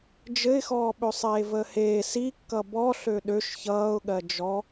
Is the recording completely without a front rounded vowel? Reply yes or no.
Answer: no